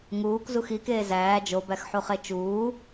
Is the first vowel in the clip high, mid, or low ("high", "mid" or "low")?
high